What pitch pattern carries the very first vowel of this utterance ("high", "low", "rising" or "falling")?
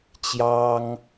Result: high